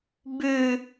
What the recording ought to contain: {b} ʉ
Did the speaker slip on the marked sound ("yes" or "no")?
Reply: no